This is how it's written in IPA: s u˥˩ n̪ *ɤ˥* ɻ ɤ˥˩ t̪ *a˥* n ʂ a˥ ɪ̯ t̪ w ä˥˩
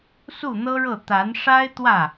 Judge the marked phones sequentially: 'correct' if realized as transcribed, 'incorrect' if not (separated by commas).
correct, incorrect